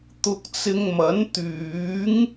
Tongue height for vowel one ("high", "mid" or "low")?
high